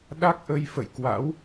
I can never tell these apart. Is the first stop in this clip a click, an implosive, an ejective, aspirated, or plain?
implosive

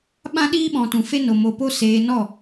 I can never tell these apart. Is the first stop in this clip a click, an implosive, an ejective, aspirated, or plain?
implosive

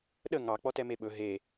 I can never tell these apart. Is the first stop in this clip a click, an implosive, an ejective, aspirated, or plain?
implosive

